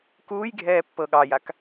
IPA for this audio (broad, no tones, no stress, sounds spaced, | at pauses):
k uː j ɡʱ ɛː pː ɤ ɠ ɑ j a k